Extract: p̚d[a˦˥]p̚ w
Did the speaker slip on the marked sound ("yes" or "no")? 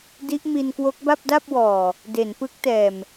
yes